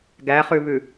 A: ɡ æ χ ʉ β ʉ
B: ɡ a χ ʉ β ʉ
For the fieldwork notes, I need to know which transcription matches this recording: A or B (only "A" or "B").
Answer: A